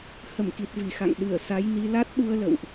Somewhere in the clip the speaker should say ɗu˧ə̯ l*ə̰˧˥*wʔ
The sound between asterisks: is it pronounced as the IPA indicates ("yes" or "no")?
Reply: no